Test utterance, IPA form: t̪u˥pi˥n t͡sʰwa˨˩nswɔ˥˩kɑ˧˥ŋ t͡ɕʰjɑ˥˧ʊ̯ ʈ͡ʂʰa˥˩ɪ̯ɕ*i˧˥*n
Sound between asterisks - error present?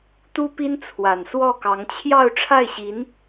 no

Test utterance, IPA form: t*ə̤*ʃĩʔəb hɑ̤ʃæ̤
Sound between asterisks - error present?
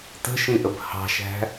no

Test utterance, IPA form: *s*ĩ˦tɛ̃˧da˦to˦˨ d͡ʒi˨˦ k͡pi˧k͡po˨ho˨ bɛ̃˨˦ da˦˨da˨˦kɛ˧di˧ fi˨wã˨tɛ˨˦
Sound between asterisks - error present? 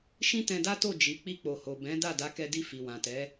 yes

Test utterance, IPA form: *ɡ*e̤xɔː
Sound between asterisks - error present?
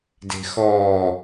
yes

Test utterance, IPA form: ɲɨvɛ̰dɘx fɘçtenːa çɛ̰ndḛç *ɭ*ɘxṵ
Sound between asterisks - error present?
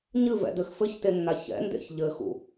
yes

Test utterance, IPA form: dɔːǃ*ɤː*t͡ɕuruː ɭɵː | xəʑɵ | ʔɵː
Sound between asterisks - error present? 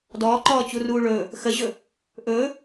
yes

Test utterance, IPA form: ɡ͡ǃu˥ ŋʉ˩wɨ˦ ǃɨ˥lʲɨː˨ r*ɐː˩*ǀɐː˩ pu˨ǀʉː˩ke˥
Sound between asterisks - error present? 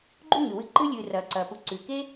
no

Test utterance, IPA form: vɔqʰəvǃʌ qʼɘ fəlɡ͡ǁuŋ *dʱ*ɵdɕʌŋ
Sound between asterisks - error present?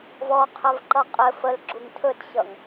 yes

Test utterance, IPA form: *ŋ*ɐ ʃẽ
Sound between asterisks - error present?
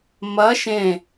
yes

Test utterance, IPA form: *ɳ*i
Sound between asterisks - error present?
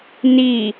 yes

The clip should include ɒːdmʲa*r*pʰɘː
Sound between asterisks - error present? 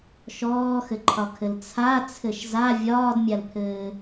yes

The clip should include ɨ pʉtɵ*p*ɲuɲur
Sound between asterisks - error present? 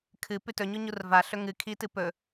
yes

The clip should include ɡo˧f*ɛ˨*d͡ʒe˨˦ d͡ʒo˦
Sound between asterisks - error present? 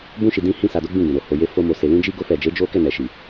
no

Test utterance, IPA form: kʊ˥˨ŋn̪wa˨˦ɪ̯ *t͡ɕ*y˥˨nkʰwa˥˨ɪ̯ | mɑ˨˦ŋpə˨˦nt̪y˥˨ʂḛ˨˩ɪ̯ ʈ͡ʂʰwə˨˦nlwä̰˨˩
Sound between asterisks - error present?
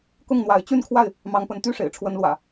no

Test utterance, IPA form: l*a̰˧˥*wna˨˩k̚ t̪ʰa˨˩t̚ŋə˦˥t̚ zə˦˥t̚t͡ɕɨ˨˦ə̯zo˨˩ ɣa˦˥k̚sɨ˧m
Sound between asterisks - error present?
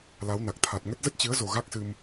yes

